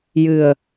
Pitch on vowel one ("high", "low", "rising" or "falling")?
low